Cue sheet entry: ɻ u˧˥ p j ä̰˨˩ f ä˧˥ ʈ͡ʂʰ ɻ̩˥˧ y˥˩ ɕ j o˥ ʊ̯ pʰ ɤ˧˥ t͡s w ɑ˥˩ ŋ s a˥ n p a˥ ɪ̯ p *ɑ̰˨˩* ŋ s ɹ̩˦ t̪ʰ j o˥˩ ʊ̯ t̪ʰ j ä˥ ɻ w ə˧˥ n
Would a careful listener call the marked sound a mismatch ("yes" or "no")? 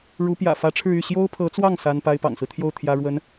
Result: no